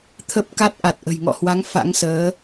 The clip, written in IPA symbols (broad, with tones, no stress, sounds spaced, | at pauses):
t̪ʰ ə˦˥ p̚ k a˦˥ t̚ ʔ a˨˩ t̚ ʔ ə̤˨˩ j ŋ ɔ̰˧˨ h w a˨˦ ŋ f a̰˧˥ ŋ s əː˨˦